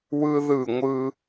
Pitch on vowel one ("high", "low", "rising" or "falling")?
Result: high